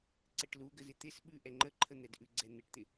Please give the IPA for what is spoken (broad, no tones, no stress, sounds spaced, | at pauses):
ǀ ɪ ʈ l u ɡ ə z ɪ t̪ ɪ s ɓ ʉ ʔ ɛ ŋ͡ǃ ə ǃʰ ə n̪ ɛ d ʔ ʉ ɡ͡ǀ ɛ n̪ ɪ ʈ t̪ ɪ